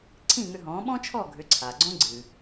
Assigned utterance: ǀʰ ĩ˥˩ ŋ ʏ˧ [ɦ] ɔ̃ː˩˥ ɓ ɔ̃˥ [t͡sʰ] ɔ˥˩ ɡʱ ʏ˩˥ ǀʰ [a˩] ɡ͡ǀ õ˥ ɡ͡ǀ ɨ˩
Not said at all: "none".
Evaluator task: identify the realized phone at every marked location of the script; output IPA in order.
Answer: ɦ, t͡ʃʰ, a˩

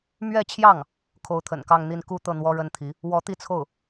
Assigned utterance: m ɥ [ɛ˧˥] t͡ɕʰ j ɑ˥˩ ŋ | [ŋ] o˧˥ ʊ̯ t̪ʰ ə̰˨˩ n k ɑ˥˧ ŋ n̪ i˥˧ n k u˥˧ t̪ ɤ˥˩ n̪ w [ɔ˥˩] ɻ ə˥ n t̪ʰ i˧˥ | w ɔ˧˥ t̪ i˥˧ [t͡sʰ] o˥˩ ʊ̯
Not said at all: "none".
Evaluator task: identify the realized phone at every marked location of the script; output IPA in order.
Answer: ɛ˥˧, kʰ, ɔ˥, t͡sʰ

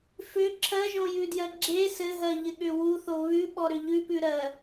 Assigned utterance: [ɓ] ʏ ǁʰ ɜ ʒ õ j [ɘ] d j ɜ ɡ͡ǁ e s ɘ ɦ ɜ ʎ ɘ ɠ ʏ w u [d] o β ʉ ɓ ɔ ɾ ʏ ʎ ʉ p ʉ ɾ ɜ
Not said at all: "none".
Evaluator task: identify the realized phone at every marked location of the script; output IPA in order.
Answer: f, ʉ, θ

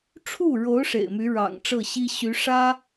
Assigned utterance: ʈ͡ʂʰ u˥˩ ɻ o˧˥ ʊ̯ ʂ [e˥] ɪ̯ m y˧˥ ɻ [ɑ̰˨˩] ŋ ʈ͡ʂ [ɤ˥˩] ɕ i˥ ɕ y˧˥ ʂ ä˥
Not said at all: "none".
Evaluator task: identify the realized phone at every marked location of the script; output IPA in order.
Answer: ḛ˨˩, ɑ̰˨˩, ɤ˥˩

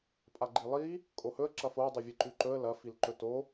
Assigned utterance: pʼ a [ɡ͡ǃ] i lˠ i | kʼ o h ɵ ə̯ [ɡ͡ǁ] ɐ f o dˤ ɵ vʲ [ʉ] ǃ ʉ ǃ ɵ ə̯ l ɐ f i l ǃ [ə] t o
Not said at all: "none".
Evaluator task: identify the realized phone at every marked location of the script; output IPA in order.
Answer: ɡ͡ǃ, ǁ, ɨ, ɵ

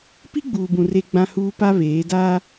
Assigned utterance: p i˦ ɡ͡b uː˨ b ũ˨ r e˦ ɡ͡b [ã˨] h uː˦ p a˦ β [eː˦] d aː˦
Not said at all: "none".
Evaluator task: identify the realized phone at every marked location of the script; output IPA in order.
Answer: ã˦, eː˨˦

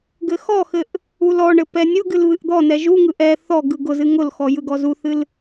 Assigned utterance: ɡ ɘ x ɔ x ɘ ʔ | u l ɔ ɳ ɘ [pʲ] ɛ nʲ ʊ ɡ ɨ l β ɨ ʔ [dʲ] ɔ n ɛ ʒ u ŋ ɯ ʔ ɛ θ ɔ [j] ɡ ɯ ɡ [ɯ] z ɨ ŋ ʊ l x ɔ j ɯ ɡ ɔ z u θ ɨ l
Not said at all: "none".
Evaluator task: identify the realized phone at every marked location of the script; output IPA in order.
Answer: p, d̪, none, ʊ

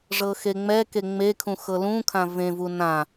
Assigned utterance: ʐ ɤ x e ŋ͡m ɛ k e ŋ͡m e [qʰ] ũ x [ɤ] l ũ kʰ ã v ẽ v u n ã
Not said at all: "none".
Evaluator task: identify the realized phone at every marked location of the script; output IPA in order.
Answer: kʰ, ɤ

